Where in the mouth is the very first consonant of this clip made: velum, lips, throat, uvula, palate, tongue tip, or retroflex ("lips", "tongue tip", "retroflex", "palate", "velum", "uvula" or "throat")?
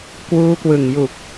velum